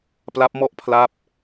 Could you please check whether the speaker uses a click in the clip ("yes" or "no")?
no